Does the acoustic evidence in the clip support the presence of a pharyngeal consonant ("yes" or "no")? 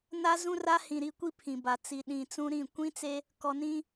no